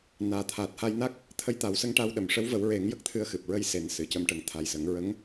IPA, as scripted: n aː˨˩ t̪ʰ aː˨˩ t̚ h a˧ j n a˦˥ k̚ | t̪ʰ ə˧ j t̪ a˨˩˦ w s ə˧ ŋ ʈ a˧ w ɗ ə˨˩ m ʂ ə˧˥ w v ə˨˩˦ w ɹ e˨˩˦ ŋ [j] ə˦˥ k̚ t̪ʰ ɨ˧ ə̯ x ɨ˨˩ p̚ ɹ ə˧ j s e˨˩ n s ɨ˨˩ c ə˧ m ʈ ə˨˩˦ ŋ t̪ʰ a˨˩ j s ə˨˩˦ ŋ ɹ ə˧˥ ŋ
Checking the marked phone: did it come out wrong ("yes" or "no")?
no